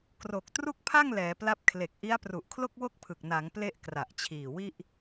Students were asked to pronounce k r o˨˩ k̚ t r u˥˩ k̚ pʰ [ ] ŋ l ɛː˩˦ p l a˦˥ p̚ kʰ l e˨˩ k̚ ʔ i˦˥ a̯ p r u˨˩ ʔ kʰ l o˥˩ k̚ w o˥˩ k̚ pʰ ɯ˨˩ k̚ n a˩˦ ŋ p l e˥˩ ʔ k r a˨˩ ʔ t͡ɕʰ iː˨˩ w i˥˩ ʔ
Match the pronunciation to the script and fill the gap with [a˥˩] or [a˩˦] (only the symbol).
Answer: a˥˩